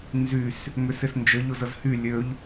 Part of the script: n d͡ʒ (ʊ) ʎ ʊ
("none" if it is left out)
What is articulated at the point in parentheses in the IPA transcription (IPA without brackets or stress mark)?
ə